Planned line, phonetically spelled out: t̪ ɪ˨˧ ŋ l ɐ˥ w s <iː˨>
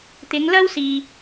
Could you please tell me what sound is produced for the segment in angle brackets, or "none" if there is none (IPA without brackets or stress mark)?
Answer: iː˨